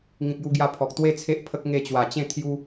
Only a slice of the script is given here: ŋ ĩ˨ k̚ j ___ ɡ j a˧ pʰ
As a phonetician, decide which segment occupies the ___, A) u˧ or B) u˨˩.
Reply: A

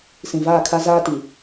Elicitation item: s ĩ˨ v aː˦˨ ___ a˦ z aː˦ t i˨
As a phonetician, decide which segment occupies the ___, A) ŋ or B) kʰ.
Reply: B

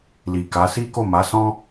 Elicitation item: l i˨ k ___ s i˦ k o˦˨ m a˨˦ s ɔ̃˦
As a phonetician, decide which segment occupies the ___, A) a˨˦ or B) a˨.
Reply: A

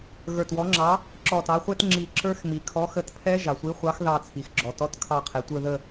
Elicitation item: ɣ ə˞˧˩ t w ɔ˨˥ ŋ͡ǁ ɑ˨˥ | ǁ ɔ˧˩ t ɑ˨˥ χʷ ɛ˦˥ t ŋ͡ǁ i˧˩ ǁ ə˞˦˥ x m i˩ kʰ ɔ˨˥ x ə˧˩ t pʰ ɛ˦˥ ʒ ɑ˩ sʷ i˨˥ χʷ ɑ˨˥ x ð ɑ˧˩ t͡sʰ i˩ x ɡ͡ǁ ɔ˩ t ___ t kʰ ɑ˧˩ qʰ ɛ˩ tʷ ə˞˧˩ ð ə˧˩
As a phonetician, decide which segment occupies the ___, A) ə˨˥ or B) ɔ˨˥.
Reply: B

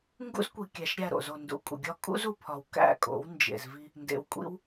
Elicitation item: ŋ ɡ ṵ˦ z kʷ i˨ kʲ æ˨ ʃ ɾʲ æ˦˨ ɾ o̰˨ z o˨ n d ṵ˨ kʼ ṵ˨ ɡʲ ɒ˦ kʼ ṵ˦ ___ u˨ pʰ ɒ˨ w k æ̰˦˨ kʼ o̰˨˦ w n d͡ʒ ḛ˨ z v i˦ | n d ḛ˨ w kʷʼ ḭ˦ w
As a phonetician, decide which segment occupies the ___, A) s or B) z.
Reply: B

